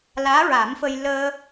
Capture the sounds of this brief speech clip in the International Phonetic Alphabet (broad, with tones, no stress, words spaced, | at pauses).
laː˧˥ɹa˨˩˦mfə˧j ləː˧